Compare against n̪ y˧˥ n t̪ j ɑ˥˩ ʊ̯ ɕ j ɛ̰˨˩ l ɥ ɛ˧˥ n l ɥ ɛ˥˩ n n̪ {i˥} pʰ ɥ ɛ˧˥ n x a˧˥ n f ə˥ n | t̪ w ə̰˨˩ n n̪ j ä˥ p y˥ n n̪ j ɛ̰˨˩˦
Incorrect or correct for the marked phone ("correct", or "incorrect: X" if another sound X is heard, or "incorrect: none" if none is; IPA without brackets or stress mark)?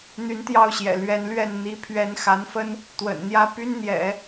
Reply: incorrect: i˧˥